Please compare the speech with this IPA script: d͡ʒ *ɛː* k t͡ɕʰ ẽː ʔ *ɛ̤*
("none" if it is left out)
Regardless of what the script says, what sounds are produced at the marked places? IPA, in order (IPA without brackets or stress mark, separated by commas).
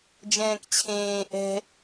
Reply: ɛ̃ː, ɛ̤